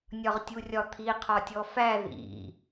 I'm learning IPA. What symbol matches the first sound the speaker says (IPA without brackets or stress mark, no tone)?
nʲ